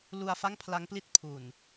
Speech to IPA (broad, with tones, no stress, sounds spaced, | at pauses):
l u˧ a̯ f a˥˩ ŋ pʰ l a˦˥ ŋ p l i˥˩ t̚ pʰ u˨˩ n